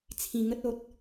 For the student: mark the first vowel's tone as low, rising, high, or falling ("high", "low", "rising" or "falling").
low